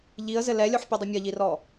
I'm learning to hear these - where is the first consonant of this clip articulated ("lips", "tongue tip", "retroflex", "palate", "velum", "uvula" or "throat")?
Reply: palate